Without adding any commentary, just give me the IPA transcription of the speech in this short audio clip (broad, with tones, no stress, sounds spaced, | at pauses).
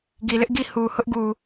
ɡ i˨ l ɪ˦ ʔ ɡ i˦˨ h u˨ h ʊ˦ ʔ ɡ u˨